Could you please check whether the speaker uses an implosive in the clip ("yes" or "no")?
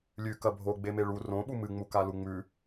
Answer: yes